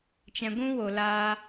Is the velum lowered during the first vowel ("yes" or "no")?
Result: yes